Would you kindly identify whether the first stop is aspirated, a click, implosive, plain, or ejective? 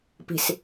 plain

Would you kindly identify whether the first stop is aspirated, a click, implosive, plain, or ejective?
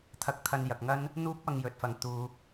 aspirated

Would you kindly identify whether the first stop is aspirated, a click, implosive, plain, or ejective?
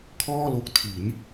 aspirated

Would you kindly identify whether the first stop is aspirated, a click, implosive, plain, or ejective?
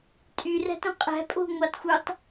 ejective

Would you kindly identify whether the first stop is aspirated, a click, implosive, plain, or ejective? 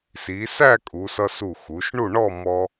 ejective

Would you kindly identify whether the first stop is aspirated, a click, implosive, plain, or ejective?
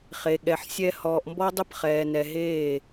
implosive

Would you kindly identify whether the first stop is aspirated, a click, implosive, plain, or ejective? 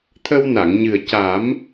aspirated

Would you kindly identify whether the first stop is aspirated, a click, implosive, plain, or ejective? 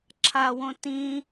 click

